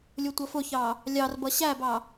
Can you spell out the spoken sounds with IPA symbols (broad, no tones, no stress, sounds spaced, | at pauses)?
lʲ ʊ tʷ ʌ f ʊ ç ɑ | lʲ ɑ r b ʌ ɕ æ b ɑ